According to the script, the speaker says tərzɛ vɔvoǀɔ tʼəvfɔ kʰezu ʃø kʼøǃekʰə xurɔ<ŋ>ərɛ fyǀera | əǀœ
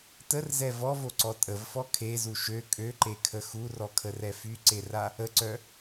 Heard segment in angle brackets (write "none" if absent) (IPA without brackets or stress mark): kʰ